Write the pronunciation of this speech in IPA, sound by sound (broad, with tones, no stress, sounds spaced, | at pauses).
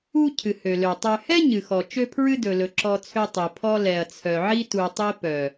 u˦ cʰ ɨ˨ h ø˨ l ø˨ tˤ ø˨ h ɛ˦ ɲ ɨ˨ x ɔ˨ t͡ʃ ø˦ pʰ ɹ ɨ˦ d ɵ˨ l ɵ˨ ǁ ɔ˦ t͡sʰ ø˦ tˤ i˨ pʰ ɔ˦ l ɛ˨ ɐ̯ t͡sʰ œ˨ ʕ i˦ t u˨ tˤ i˦ p œ˨